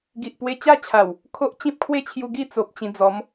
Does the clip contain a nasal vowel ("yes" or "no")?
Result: yes